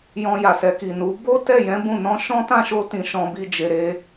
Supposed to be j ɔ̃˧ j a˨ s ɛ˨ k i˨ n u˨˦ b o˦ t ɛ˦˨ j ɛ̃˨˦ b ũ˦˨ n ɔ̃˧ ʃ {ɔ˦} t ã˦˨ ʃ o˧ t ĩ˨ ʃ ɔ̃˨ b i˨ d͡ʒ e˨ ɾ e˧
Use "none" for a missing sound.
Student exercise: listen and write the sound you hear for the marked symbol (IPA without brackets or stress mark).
ɔ̃˦